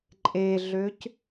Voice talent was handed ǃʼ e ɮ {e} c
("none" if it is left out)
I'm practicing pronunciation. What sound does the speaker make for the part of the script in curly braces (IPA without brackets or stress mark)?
ø